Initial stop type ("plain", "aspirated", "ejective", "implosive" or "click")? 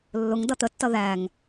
plain